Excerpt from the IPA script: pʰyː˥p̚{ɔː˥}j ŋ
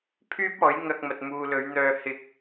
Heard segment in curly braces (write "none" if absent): ɔː˨˥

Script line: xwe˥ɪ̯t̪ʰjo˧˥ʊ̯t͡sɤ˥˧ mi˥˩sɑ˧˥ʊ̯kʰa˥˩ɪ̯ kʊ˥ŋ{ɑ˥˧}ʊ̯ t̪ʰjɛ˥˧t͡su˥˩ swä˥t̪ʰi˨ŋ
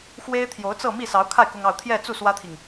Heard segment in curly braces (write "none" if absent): ɑ˥˧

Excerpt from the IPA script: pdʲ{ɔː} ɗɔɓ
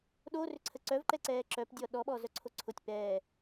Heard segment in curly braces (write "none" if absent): ɔ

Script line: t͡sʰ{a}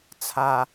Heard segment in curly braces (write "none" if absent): a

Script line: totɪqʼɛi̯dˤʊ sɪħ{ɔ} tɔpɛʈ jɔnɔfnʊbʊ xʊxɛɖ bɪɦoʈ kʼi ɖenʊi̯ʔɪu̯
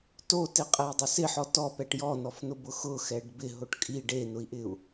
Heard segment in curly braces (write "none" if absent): ɔ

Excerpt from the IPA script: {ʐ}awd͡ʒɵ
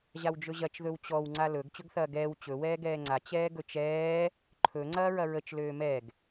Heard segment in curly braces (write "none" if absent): ʑ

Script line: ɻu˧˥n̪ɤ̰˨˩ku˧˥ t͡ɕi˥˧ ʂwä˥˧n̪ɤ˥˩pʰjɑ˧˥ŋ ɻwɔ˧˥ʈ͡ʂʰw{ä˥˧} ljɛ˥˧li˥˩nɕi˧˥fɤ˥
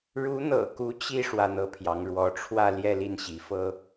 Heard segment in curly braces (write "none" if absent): ä˥˧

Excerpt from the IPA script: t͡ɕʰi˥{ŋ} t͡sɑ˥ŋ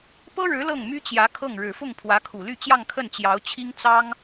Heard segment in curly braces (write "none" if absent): ŋ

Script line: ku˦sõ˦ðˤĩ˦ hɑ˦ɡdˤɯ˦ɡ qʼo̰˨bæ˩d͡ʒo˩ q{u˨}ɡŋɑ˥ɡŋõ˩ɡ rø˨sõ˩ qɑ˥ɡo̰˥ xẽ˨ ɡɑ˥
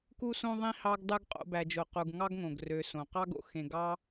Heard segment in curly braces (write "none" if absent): u˨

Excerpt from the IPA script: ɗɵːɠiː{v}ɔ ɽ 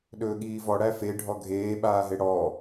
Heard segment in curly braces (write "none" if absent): v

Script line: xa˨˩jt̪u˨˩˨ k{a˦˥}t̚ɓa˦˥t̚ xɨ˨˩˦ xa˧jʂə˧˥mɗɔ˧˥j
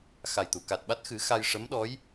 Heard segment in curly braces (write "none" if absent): a˨˩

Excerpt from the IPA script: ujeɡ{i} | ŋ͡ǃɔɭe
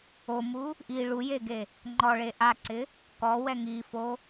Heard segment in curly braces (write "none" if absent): e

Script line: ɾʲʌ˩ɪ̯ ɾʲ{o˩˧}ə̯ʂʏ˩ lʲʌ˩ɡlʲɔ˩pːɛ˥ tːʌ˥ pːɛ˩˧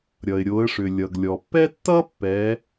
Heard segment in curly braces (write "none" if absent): o˩˧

